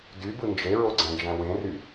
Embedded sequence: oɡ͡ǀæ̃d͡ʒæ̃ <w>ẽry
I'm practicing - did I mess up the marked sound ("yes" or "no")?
no